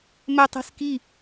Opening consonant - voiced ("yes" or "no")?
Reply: yes